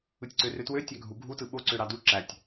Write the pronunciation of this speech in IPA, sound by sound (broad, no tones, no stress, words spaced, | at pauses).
ɯtʲǀørøtwø tʲæɡʱu ɡʱutɯ ɓoǀøɾɑ du ǁætʲ